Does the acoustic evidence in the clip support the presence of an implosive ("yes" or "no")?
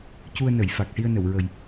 no